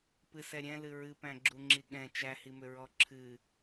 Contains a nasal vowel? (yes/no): yes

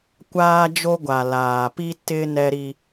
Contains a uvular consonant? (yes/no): no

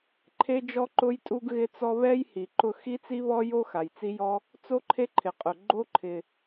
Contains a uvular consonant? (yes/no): yes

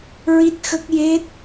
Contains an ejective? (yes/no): no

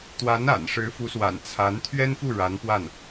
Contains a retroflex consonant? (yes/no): yes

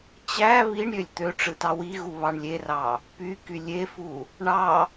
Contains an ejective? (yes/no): no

